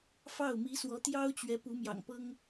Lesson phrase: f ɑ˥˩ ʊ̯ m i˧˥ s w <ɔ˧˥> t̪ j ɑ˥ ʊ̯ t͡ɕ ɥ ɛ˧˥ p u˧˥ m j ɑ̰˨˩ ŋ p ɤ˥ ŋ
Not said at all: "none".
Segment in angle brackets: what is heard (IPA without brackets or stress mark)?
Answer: ɔ˧˥